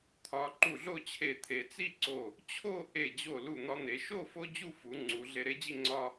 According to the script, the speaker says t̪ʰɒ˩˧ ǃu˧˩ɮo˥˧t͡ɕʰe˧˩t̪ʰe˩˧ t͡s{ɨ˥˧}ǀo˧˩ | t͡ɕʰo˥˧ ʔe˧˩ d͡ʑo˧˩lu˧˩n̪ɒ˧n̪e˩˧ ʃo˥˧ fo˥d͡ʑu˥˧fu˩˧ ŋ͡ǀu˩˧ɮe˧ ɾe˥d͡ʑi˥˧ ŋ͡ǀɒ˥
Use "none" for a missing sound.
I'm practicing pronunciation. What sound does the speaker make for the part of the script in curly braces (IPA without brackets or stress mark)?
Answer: i˥˧